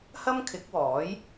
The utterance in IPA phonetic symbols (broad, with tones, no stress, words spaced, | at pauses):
hɐ˥mkʰɪ˨˥k̚wɔː˨˥j